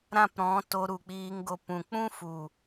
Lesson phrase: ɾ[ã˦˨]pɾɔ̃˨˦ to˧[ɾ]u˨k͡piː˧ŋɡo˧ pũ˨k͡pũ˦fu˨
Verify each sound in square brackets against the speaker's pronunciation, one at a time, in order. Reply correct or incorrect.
correct, correct

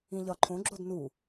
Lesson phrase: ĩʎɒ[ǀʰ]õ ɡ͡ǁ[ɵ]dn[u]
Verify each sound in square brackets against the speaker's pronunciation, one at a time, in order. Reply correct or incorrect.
incorrect: ǃʰ, incorrect: o, correct

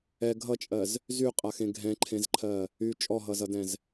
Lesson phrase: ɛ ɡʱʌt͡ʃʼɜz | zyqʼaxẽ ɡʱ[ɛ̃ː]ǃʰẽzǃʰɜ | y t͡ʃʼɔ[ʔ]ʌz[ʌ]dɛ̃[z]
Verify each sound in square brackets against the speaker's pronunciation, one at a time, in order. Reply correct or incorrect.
incorrect: ɛ̃, incorrect: ɦ, correct, correct

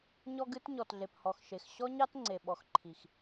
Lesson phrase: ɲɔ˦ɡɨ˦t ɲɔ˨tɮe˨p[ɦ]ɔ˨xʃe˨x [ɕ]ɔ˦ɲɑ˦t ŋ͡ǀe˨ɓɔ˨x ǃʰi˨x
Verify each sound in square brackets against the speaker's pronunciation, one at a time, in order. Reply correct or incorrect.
incorrect: h, correct

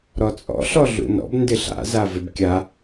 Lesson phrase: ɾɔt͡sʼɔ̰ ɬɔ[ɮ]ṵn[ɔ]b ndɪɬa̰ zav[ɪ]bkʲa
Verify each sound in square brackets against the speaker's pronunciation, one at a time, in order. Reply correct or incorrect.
correct, incorrect: ɔ̰, correct

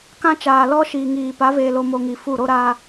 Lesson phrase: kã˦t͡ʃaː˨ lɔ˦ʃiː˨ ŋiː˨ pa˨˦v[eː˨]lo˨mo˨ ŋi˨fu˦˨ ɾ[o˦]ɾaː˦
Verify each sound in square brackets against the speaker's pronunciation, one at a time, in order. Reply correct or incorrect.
correct, correct

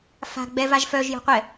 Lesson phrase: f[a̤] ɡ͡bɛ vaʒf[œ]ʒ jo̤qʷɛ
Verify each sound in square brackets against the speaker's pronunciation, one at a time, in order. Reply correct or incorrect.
correct, correct

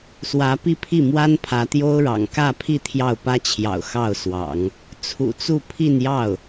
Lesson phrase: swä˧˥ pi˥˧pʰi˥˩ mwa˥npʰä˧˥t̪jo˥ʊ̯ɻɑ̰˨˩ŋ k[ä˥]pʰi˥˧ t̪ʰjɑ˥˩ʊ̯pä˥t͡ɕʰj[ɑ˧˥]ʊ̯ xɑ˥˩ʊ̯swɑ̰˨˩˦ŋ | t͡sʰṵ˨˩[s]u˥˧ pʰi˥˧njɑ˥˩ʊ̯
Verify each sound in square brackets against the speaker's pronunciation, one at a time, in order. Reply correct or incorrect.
incorrect: ä˥˧, incorrect: ɑ̰˨˩, incorrect: t͡s

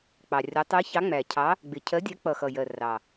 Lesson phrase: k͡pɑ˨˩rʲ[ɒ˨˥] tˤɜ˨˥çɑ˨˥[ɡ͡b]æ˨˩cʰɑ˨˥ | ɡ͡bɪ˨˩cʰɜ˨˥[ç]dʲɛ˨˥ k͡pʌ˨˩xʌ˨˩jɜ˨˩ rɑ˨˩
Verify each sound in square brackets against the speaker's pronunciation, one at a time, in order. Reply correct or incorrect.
correct, incorrect: ŋ͡m, incorrect: none

